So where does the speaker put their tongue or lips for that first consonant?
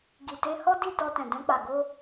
velum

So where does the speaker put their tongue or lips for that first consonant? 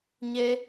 palate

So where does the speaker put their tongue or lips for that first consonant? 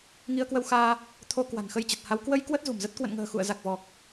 velum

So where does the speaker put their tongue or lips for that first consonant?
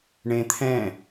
retroflex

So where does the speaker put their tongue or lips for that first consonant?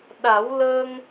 tongue tip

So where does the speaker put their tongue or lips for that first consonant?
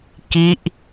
velum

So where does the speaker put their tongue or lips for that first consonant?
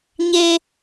palate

